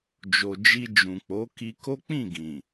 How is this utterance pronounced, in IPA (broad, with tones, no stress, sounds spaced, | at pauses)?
d͡ʒ o˨ d͡ʒ i˧ d͡ʒ ũ˨ k͡p o˨˦ k i˧ k o˦ k͡p ĩ˦˨ ɡ ĩ˨